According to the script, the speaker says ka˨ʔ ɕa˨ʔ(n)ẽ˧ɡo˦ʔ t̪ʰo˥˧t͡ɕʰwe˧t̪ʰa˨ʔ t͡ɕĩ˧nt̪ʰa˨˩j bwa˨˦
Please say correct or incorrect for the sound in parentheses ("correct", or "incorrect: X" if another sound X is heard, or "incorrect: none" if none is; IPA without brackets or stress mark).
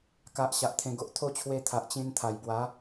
incorrect: t̪ʰ